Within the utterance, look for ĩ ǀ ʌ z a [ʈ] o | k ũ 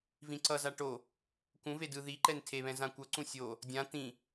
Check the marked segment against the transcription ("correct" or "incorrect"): correct